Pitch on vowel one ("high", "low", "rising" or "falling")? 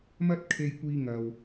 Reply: high